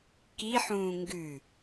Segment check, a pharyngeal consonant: present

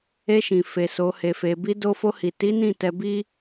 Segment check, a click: absent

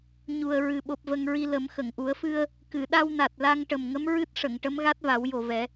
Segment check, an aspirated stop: absent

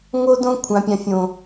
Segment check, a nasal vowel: present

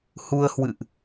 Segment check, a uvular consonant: absent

